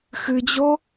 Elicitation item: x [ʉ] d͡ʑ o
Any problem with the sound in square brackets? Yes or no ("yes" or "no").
yes